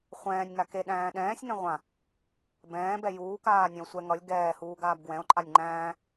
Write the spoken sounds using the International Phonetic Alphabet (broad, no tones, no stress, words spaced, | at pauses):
χʷɛ̃ːnʲŋa keɗæ̃ː ɗɛ̃ːsʲŋɛ̃ ʁʷã | bɛ̃ːbɛ juːkaːnʲɛ̃o̯ sʷɛ ŋʌlʲ ɡɛːhuːɡaːb ɡwɛ̃o̯ǃʼanʲ ŋ͡ǃæ̃ː